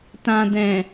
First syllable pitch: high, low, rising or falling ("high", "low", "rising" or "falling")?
low